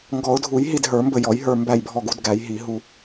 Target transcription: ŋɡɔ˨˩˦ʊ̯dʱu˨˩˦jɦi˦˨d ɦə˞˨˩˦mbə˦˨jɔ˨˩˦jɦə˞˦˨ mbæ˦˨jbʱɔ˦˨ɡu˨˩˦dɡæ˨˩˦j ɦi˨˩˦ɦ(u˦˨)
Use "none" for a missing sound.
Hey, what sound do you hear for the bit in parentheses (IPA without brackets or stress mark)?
u˦˨